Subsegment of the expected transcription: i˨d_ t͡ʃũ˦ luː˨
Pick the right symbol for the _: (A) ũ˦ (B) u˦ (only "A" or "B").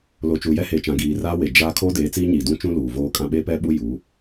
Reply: A